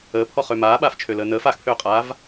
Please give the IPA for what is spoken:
əː pʰ ɔ χ ø m aː ɓ aː f t͡ʃʰ ø l əː n əː f a x pʰ øː qʼ aː v

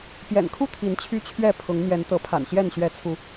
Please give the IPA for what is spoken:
p j ɛ̰˨˩ n kʰ u˥˨ t̪ʰ i˨˦ n t͡ɕʰ y˦ t͡ɕʰ ɥ ɛ˥˨ pʰ ʊ˨˦ ŋ n̪ j ɛ˨˦ n t̪ ɤ˨˦ pʰ a̰˨˩ n ɕ j ɛ˥˨ n ɕ ɥ ɛ˨˦ t͡sʰ u˨˦

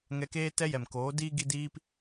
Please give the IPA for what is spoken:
ŋ ɛ˧ k eː˦ t ɛ˦ j ɛ˨ m k oː˨˦ d iː˦ ɡ i˦ d iː˦ p

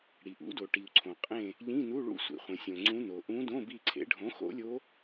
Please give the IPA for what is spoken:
ɽ i˩ ʔ ṵ˩˥ d o˩ ʈ i˩ u̯ ǀʰ õ˩ qʼ ẽ˦˨ | ʎ ĩ˧˥˧ n u˧˥˧ ɭ ṵ˦˨ sʷ ḭ˩ χʷ ẽ˩ sʲ õ˩ ŋ͡ǀ ũ˧˥ n o˩ ʔ ũ˧˥ d õ˧˥˧ b i˦˨ ǀʰ ḛ˩˥ ɖʱ õ˩˥ x o̰˧˥ lʲ o˧˥

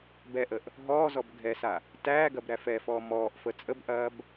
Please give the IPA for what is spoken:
b ɛ ʔ ə ʔ | ɦ ɔː z ɔ b ɡʱ ɛ s a | t æː ɡ ɐ b ɾ æ f ɛ f ɔː m ɔː ʔ f ə t͡sʼ ə b ʔ ɐː b

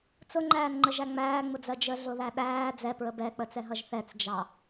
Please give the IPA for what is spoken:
t͡s ʊ ŋ͡ǃ æː n ŋ͡ǃ ə ʒ æ ŋ͡m æː ŋ͡m ʊ d͡z ɜ d͡ʒ ə ɮ ʊ ð æ ɗ æː d͡z ɛ p ɹ ə b ɛ k͡p ə t͡s ɛ ɦ ʌ ʒ θ ɛ t͡s d͡ʒ ɑ

